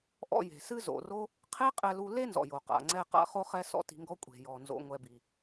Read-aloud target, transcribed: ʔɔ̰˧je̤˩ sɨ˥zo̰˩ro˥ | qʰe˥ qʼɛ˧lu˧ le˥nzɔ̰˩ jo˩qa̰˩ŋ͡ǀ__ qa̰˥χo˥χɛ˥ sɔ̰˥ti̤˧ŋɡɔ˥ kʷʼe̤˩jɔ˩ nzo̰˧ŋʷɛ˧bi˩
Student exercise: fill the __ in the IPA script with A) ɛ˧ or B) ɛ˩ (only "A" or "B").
A